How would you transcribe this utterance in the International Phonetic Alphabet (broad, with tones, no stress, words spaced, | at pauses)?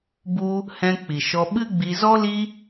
bu˦ | hɛ̃˧ k͡pi˨ʃɔ˧ ɓɨ˦ɡ͡bi˧ zɔ˦li˦